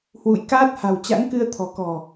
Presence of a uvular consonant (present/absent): absent